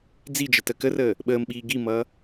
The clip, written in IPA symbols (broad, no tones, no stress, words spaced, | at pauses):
d͡zid͡ʒə təkərəː | ɓəːmɓiː ɡimʌː